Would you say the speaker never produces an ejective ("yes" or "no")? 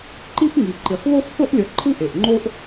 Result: yes